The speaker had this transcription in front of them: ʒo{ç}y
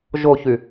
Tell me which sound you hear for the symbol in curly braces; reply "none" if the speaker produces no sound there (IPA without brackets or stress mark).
ç